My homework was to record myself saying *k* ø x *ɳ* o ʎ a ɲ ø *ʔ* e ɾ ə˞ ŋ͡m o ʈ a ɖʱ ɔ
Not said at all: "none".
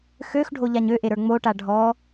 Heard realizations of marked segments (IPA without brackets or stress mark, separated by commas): x, ɖʱ, ʔ